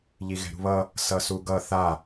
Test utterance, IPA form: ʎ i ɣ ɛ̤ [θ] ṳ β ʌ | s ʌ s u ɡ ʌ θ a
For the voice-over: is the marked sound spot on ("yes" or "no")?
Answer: no